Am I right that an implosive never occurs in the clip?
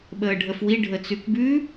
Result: no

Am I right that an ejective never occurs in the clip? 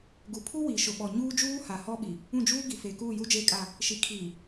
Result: no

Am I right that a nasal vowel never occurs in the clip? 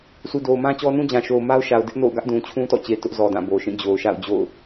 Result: no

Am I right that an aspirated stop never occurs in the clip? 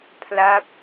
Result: no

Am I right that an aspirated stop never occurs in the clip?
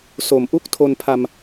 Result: no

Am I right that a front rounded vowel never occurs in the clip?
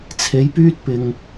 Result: no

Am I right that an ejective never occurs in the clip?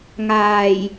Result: yes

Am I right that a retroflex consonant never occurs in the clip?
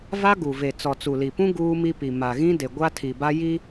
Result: yes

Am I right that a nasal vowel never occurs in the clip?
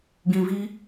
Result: no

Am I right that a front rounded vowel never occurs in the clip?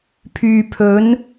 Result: no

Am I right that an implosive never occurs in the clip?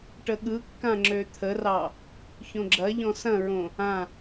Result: no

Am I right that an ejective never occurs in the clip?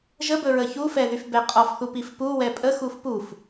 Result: no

